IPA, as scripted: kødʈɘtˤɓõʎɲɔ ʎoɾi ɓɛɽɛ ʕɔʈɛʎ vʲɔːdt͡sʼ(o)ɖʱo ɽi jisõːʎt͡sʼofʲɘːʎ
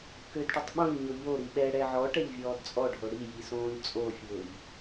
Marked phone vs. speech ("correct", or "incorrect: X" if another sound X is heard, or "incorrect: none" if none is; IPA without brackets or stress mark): incorrect: ɔ